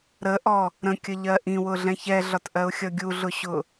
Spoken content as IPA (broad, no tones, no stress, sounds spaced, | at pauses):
ɾ ə ʔ ɔ | ɾ ə̃ kʲ ə ʎ ɜ ʔ ĩ w ʊ ɮ ɛ̃ ç ɛ ɮ ɒ t ʔ ɜ ʊ̯ xʲ ʌ ɡʲ u ɮ ʊ ɕ ʊ